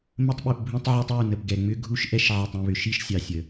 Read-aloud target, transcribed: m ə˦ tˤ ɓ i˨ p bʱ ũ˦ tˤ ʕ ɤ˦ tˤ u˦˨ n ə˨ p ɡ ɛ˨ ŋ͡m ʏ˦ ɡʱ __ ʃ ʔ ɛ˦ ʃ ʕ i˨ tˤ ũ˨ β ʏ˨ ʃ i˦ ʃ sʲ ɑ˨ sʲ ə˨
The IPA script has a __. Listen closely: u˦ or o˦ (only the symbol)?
u˦